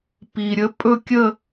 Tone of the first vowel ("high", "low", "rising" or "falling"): low